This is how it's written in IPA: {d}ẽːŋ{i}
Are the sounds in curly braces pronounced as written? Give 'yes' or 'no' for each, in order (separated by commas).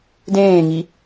yes, yes